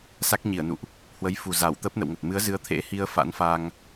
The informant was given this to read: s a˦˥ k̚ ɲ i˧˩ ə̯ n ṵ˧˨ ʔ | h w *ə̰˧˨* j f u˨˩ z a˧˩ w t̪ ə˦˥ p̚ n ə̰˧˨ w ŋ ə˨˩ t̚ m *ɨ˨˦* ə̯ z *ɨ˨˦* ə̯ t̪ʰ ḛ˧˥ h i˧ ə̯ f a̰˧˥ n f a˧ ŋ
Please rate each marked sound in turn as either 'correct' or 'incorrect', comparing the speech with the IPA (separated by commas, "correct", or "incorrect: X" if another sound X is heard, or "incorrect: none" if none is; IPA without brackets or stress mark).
incorrect: ə˨˦, correct, correct